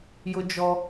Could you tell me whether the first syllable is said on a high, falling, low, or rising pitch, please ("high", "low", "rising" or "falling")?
high